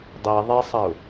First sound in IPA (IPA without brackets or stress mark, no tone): dˤ